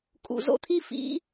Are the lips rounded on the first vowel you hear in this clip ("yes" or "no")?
yes